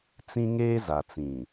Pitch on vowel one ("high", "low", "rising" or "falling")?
high